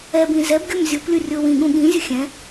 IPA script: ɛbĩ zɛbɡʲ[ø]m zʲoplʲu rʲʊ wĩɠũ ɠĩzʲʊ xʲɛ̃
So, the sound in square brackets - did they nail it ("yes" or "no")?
no